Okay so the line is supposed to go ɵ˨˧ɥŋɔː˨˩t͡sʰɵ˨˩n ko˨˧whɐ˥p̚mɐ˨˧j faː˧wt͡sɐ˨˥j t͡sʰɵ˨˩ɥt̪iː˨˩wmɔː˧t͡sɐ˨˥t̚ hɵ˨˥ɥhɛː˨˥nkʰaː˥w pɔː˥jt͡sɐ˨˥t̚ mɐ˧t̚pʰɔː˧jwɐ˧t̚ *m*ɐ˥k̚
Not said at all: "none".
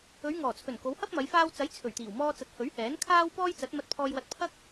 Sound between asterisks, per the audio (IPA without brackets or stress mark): pʰ